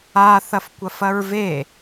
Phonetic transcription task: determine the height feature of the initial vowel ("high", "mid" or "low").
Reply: low